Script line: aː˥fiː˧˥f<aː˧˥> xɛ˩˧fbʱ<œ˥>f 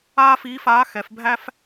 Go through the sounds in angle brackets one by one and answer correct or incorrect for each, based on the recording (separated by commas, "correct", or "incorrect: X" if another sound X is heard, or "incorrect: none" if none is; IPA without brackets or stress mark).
correct, incorrect: æ˥